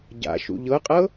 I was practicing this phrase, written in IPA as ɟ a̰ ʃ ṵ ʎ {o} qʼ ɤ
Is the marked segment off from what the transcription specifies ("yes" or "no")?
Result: yes